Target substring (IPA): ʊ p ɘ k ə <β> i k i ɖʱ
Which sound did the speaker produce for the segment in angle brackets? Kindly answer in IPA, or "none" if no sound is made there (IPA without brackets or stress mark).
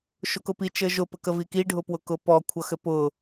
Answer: v